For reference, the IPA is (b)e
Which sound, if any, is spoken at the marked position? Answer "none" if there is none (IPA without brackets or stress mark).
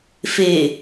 f